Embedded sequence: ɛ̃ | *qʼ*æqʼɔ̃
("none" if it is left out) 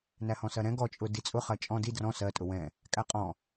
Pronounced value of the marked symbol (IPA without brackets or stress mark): kʼ